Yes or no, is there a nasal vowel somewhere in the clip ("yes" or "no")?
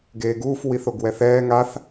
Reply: no